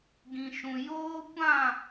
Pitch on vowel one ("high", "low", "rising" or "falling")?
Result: low